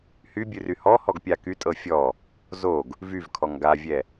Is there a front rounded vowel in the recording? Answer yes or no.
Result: yes